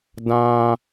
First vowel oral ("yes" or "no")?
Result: no